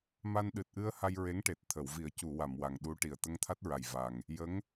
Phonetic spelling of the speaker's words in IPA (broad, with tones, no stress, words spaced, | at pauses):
ma˧nɗɨ˨˩t̚ʔɨ˧ə̯ ha˧j ɹe˧˥ŋʈe˨˩t̚ t̪ʰə˨˩˨wvi˨˩˦ə̯cu˨˩˨wa˨˩˨m wa˨˩ŋɗu˧˥ʈi˨˩ə̯ t̪ə˧ŋt̪ʰa˦˥t̚ɹa˨˩j va˨˩ŋ | jə˧˥ŋ